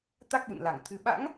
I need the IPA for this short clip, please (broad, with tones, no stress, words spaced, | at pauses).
t̪a˦˥k̚ɓṵ˧˨nla˧˩ŋt̪ʰɨ˨˦ ɓa̰˧˥ŋ